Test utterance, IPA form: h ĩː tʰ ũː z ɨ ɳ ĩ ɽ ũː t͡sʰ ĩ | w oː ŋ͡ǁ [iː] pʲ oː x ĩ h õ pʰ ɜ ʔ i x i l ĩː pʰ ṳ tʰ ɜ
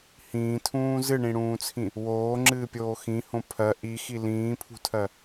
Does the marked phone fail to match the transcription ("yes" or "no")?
yes